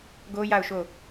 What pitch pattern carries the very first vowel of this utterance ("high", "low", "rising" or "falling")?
high